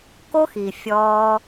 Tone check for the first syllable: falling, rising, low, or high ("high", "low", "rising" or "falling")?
high